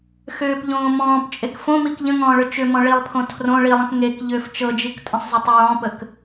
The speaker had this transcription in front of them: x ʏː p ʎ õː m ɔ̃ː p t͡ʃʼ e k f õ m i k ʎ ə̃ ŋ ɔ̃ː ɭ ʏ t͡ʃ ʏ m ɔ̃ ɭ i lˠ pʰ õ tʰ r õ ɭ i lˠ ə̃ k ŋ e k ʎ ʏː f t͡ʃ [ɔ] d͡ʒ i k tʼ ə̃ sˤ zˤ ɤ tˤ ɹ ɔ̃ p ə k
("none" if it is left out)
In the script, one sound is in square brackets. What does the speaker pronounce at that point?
ɤ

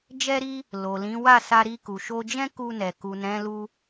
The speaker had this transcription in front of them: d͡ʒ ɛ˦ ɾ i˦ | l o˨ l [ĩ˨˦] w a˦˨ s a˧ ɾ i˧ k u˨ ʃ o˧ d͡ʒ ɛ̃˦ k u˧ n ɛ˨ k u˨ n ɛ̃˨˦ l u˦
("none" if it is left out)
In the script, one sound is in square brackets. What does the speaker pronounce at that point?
ĩ˨˦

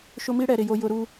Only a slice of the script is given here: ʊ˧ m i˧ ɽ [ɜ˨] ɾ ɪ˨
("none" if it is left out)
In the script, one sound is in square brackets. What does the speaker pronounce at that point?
ɛ˨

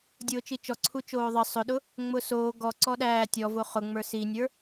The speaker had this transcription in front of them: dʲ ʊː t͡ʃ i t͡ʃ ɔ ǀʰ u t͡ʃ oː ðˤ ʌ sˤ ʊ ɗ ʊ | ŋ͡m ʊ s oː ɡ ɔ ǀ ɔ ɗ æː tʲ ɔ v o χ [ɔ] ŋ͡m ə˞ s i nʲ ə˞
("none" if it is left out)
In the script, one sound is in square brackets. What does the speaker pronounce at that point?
ʊ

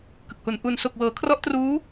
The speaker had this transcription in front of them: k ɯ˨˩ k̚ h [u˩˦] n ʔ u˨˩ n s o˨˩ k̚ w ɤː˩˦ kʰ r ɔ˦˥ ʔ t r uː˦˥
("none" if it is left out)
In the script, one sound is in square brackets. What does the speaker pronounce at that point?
u˨˩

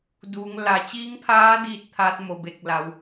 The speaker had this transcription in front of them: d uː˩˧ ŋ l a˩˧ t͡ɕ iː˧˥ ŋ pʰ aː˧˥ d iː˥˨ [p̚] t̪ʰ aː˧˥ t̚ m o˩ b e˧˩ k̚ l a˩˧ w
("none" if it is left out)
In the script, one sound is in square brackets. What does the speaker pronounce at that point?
t̚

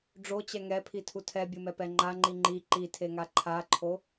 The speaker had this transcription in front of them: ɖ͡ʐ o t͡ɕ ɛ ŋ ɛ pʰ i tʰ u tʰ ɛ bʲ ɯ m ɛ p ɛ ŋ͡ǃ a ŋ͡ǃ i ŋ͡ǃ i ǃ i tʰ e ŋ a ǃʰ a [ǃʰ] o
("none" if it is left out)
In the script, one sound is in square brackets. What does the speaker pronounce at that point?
ǃʰ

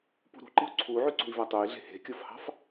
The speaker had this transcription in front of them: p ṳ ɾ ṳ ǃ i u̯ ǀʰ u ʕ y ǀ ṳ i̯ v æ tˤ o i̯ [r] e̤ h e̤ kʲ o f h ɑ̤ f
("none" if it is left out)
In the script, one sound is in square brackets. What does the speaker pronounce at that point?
ɮ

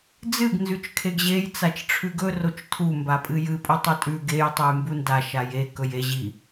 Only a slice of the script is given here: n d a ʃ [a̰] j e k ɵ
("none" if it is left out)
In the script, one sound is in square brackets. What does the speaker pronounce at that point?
a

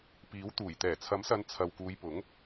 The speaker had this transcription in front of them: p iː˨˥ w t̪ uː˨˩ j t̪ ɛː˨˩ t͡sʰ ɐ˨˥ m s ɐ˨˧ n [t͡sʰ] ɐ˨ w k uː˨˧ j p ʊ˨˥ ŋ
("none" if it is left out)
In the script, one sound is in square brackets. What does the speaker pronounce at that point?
t͡sʰ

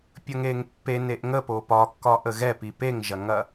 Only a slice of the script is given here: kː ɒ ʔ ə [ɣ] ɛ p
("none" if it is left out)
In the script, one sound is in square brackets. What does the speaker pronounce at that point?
ɣ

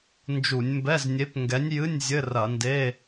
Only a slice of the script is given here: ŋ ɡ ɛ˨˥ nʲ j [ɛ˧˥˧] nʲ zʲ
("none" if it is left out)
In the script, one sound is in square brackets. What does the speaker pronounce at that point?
ɨ˧˥˧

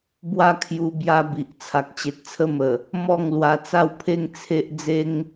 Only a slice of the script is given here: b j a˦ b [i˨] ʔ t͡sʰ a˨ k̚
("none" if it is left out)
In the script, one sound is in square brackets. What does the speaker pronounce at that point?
i˨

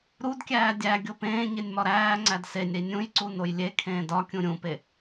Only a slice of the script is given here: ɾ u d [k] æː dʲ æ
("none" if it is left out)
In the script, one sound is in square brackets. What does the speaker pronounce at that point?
kʲ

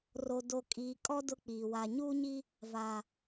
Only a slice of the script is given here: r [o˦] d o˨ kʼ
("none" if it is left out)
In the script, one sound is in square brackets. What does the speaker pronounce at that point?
o˨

